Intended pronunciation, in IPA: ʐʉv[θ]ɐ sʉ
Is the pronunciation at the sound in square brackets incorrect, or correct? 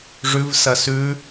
incorrect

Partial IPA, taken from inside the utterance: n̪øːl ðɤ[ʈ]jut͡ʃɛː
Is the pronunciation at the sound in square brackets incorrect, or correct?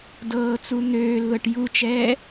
correct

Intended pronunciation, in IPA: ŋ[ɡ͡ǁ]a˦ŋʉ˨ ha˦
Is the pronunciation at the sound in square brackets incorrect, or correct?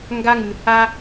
incorrect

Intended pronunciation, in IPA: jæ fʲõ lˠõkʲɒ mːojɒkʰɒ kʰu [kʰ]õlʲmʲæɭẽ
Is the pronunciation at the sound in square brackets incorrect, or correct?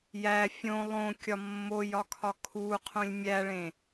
incorrect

